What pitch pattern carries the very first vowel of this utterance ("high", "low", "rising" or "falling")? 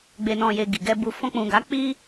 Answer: low